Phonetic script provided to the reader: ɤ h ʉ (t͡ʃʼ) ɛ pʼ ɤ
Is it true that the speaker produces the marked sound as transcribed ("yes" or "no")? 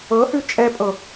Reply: yes